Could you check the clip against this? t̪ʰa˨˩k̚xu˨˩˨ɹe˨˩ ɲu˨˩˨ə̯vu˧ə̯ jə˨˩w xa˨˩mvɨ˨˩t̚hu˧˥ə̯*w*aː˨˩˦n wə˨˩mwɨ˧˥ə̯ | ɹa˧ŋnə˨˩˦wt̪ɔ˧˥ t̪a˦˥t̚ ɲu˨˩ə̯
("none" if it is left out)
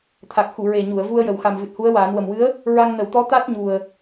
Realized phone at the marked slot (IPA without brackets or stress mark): w